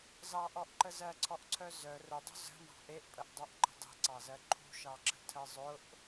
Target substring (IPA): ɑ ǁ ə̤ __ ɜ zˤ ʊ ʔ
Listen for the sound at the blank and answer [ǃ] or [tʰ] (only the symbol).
tʰ